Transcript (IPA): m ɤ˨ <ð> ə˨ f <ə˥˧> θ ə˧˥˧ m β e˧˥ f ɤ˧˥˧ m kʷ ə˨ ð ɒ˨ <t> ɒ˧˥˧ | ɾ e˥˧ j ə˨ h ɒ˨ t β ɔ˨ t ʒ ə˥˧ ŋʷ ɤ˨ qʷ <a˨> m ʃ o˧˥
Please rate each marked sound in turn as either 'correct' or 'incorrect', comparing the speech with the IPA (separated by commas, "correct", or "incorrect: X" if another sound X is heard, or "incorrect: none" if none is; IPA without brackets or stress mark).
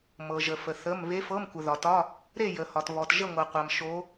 incorrect: ʒ, incorrect: ə˨, correct, correct